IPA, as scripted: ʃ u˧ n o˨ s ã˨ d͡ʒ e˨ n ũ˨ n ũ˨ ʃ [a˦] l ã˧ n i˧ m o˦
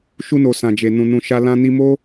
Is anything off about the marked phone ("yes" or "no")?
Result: yes